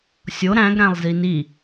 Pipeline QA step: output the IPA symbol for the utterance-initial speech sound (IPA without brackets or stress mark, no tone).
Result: sʲ